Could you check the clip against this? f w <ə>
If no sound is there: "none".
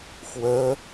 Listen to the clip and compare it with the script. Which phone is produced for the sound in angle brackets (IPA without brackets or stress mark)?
ə